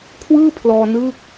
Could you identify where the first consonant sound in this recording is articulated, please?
velar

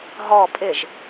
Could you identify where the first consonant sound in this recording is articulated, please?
glottal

